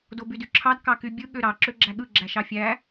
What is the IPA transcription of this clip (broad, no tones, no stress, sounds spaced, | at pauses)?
d o b y d y ǁʰ ɑ d k ɑ k y bʲ ɯ ɠ ø ɾ ɑ ǁ ø ɡ͡ǁ æ ɠ ɯ ɡ͡ǁ æ ʃ ɑ fʲ æ